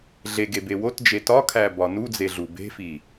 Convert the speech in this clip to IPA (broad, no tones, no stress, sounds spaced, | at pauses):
ɮ e ɡ e b e w o t d͡ʒ e t ɒ kʰ æ b ɒ n u d͡z e ɮ u b e̤ f i